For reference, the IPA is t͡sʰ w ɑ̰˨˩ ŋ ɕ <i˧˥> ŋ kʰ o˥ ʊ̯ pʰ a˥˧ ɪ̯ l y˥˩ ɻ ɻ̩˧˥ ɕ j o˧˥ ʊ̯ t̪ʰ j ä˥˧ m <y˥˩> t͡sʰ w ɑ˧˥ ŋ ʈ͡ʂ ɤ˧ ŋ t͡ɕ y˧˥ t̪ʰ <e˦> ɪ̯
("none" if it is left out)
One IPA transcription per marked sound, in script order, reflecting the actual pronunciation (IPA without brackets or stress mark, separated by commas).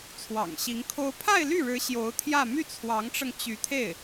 i˧˥, y˥˩, e˥˩